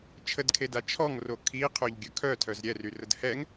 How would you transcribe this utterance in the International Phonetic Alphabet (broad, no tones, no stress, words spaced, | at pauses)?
t͡ʃʰədkʰeda t͡ʃʰɔŋro kʰiqʰøʎɡʲœ kʰœtʰœz ɾʲɛryrəd hɛŋ